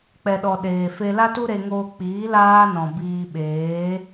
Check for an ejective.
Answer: absent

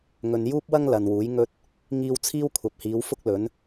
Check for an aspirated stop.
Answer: present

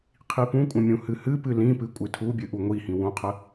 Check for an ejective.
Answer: present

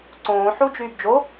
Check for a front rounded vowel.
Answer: present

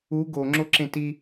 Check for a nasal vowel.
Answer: present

